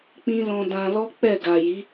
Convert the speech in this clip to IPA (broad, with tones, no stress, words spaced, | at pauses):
k͡pĩ˦lɔ̃˧dã˧ lɔ˦ k͡pɛ˦˨ ɡa˨ji˨˦